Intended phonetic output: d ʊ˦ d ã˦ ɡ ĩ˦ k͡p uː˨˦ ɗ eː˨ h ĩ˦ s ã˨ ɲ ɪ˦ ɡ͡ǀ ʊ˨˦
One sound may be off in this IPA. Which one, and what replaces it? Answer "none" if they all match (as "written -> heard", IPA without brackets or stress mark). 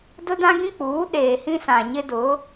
ɡ͡ǀ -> d